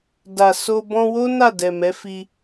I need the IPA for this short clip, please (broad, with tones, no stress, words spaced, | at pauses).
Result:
da˨ so˧ bɔ̃˧wo˦ na˦˨dɛ˨mɛ˨˦ fi˧